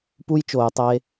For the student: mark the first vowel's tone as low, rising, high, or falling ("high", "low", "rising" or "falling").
high